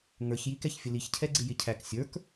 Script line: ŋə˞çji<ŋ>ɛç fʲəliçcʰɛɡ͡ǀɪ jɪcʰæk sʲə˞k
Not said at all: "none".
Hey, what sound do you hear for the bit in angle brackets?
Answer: k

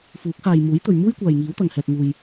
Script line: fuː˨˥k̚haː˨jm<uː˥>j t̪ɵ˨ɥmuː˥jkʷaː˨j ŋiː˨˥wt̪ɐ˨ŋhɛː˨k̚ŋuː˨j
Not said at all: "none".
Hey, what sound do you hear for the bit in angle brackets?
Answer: uː˨˥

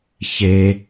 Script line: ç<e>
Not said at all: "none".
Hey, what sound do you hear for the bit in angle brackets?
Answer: e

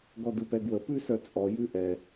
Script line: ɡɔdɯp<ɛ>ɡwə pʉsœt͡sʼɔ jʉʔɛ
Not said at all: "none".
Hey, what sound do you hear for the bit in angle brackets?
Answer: ɛ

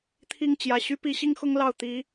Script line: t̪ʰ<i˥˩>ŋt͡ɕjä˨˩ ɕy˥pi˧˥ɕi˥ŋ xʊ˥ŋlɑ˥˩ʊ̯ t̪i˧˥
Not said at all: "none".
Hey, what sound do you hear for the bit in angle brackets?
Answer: i˥˩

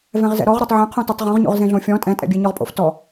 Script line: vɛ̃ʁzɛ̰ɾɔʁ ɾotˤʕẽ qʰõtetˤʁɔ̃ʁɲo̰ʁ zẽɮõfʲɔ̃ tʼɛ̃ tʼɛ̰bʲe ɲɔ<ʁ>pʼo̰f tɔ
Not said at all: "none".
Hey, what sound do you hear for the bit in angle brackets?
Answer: ʁ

